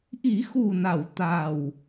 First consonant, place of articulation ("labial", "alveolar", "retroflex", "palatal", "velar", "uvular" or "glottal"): glottal